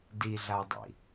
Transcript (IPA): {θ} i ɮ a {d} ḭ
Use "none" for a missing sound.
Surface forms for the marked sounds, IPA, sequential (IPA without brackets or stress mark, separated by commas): d, dˤ